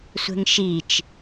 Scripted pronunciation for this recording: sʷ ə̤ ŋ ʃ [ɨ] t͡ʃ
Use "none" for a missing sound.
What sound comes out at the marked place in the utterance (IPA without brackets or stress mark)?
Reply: i